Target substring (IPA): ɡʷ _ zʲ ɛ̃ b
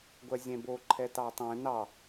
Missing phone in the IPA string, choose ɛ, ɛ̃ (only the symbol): ɛ